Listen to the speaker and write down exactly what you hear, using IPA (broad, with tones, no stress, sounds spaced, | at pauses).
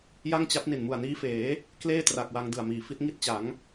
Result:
j a˥˩ ŋ t͡ɕ a˦˥ p̚ n i˨˩ n m u˨˩ a̯ n iː˦˥ f eː˩˦ | k l eː˥˩ t r a˨˩ k̚ w a˧ ŋ d ɯ˨˩ a̯ m iː˩˦ f i˦˥ t̚ ŋ i˥˩ t̚ t͡ɕ a˩˦ ŋ